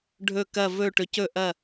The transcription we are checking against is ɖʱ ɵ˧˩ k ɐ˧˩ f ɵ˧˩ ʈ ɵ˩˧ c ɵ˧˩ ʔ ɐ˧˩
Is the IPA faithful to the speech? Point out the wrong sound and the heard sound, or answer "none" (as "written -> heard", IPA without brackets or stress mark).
f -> v